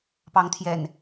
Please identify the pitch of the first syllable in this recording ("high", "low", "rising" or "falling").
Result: rising